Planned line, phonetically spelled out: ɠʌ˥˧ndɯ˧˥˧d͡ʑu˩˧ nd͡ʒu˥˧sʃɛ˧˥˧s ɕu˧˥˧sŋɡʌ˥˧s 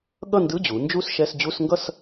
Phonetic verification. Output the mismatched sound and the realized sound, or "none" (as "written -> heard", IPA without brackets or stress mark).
ɕ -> d͡ʑ